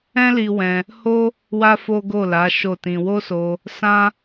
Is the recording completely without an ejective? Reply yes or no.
yes